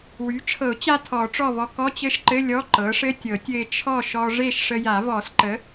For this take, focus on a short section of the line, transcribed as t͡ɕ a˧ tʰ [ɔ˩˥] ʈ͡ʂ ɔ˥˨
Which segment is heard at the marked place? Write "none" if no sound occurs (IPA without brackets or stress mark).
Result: ɔ˨˩˦